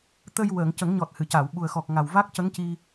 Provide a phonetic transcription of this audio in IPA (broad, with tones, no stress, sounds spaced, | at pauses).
t̪ ə˧ j w əː˨˩˨ ŋ c ə˨˩˦ ŋ ɲ ɔ˨˩ t̚ h ɨ˨˩˨ c a˨˩˨ w ɓ u˨˩ ə̯ x ɔ˨˩ k̚ ŋ a˨˩ w v a˦˥ k̚ c ə˧˥ ŋ c i˧